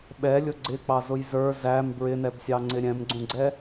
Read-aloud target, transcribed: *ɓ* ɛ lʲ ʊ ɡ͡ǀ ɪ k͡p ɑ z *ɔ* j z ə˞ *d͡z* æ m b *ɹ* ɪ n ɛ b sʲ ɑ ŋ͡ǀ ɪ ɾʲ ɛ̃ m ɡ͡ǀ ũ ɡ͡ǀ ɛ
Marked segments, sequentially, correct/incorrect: correct, incorrect: ʊ, incorrect: z, correct

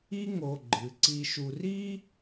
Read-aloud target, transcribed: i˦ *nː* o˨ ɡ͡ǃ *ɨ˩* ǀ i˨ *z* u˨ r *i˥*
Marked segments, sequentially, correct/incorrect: incorrect: ŋ, correct, incorrect: ʃ, correct

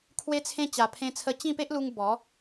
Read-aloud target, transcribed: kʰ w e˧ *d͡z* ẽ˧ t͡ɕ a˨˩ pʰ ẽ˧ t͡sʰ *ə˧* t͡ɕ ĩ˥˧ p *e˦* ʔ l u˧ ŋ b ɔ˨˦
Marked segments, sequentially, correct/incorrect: incorrect: t͡sʰ, correct, correct

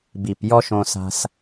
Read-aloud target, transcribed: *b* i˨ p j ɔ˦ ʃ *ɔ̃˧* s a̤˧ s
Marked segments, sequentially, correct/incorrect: correct, incorrect: õ˧

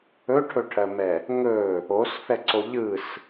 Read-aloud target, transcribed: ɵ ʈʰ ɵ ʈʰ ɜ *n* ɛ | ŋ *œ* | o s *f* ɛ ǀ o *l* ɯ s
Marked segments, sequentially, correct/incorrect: incorrect: m, incorrect: ɵ, correct, incorrect: ʎ

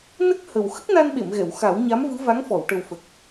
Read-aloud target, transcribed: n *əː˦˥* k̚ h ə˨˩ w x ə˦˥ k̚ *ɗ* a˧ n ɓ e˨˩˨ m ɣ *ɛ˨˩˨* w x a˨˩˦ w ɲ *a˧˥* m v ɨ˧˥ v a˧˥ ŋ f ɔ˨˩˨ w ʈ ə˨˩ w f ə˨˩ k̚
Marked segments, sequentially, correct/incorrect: incorrect: ə˦˥, incorrect: n, correct, correct

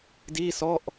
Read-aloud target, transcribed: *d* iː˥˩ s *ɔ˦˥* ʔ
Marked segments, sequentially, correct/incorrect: correct, incorrect: ɔ˥˩

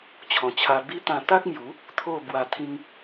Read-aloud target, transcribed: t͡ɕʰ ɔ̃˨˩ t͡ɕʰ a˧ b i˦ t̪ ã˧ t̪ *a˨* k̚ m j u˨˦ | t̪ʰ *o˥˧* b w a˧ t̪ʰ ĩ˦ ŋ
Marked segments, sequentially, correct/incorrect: incorrect: a˦, correct

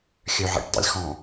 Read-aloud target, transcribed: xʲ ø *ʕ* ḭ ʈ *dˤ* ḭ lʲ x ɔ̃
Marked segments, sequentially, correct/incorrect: correct, correct

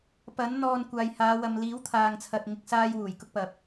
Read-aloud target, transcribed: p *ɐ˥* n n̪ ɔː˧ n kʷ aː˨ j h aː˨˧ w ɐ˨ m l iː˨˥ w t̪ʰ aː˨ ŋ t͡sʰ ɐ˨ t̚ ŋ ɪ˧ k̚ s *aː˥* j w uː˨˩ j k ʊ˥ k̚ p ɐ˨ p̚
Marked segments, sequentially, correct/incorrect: incorrect: ɐ˨˥, correct

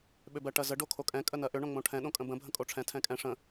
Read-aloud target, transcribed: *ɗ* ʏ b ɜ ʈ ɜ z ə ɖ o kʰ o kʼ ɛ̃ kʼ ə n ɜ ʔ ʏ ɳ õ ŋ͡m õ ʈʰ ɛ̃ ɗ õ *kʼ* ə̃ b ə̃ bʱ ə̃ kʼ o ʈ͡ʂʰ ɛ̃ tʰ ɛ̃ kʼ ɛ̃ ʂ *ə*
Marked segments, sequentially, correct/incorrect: incorrect: ɓ, correct, incorrect: ə̃

